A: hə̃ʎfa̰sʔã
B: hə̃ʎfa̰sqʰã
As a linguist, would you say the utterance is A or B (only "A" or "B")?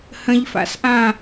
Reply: A